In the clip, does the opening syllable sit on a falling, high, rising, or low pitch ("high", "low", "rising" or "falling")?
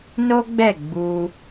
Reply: high